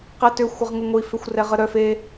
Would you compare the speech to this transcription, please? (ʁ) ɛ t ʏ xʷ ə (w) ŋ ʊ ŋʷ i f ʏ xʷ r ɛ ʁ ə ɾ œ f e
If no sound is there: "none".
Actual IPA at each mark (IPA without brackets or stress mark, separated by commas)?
q, ʁ